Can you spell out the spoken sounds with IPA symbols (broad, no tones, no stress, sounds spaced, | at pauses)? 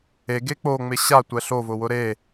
e ɡ e k͡p o ŋ͡m ɪ ɕ a tʷ ɛ ɬ o v ʊ w ʊ ɾ e